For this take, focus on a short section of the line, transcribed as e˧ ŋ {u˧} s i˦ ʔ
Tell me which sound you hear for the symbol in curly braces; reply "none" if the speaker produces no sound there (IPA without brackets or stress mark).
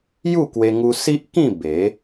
u˧